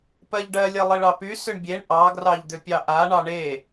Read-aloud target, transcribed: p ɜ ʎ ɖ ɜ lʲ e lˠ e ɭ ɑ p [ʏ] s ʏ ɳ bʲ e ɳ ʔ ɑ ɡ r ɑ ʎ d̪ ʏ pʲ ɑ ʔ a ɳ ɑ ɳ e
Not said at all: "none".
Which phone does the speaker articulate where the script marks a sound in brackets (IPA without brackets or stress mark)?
y